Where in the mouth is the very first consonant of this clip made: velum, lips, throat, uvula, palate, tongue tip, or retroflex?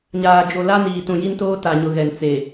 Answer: palate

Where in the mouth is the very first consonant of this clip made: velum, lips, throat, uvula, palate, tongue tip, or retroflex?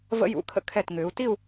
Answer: lips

